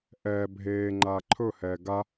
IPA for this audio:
ʔ ɛː bʱ eː ŋ͡ǃ aː ǃʰ ɵ h ɛː ɡ a

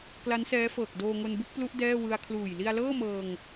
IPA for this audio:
k l a˦˥ n s ɛː˦˥ f ɤː˨˩ k̚ d oː˧ ŋ o˧ n b u˥˩ k̚ p l u˦˥ ʔ d ɛː˥˩ w ɯ˧ a̯ kʰ l uː˨˩ j l i˧ a̯ l ɤː˥˩ m ɤː˧ ŋ

